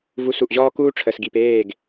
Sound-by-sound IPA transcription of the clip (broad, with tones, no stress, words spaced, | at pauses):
vu˨˦su˨ʔʑɔː˦ kuː˦ʈ͡ʂʰəː˨sɡi˨peː˦˨ɡ